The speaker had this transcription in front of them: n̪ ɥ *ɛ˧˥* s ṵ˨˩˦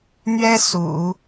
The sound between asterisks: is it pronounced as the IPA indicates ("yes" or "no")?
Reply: no